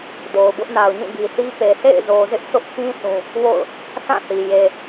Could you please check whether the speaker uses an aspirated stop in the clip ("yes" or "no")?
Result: no